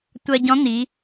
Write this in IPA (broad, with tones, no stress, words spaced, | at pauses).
tʷɜ˧ɟɔ̃˧˥n̪i˩˧